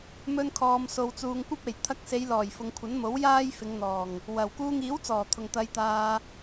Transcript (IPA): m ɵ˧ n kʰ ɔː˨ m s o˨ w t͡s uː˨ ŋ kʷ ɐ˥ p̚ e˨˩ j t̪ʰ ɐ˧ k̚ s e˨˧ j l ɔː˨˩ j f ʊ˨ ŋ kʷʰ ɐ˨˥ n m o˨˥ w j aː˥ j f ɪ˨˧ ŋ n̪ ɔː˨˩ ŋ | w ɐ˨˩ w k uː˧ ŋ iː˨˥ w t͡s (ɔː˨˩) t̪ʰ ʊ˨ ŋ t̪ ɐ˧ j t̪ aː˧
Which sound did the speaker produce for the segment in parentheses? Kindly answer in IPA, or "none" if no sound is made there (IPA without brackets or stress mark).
ɔː˨˩